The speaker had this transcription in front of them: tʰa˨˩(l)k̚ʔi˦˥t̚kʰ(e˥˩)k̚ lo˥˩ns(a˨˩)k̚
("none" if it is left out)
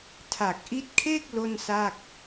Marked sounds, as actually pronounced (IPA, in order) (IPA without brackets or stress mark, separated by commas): none, e˥˩, a˥˩